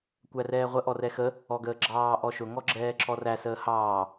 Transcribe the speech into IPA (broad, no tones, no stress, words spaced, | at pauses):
kʷærɛːʁʷə ʔɔrɛxə | ɔɡəːɡ͡ǁɑː ʔɔʃʊ ŋɔɡ͡ǁɛːǁɔræ səːhɑː